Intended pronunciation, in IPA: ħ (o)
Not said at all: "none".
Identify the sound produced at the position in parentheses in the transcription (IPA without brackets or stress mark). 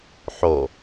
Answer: o